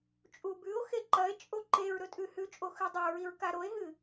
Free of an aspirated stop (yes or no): yes